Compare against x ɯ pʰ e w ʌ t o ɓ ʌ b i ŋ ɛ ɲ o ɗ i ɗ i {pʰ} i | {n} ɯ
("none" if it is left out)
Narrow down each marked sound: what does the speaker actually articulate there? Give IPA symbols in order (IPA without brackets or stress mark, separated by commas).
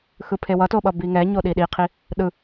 qʰ, ɗ